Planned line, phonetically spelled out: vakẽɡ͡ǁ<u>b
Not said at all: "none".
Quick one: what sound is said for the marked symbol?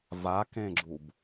u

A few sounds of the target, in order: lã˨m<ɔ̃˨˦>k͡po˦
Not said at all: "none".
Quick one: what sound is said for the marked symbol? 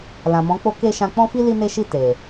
ɔ̃˨˦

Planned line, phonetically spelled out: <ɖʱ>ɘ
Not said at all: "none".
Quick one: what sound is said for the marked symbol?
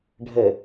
ɖʱ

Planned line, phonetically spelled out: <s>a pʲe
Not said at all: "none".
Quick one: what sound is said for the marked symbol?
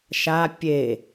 ʃ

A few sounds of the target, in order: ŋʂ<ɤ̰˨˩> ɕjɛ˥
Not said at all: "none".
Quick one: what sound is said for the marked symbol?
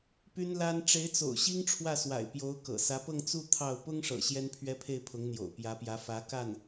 ɤ̰˨˩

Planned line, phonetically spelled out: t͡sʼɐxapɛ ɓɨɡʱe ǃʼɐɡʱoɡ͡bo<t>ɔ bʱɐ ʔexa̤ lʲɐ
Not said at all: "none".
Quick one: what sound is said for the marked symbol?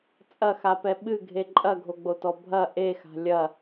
t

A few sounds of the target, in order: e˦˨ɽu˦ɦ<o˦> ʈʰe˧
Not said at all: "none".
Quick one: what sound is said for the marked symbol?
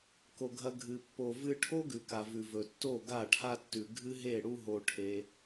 o˧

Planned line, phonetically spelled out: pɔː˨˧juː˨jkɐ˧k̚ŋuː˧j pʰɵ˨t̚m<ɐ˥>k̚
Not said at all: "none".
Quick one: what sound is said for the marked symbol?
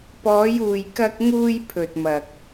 ɐ˨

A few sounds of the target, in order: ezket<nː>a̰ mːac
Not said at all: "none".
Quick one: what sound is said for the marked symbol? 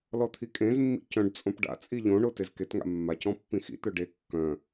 ŋ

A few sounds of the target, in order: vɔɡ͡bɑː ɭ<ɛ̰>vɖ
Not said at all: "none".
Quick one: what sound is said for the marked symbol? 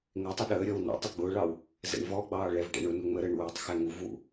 ɛ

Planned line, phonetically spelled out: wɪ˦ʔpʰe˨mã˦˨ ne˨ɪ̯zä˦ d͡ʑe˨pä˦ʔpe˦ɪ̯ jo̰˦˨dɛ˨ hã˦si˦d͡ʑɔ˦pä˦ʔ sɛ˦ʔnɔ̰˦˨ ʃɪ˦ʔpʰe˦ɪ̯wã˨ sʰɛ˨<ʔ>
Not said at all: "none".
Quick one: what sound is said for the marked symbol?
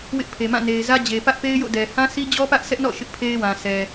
none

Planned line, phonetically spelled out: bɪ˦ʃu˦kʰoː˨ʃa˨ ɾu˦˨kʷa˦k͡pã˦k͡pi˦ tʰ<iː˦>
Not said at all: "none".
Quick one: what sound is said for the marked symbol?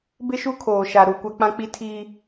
iː˦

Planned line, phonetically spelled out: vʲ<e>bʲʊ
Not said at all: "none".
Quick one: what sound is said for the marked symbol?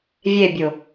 e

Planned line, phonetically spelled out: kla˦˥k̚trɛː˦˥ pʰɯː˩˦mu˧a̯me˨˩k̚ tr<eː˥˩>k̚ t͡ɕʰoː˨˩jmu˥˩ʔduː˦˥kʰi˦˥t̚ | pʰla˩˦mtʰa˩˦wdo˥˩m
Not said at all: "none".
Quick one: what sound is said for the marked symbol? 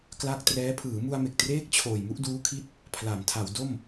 eː˥˩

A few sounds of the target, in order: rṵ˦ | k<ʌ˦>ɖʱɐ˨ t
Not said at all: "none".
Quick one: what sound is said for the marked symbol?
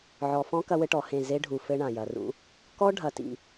ɔ˦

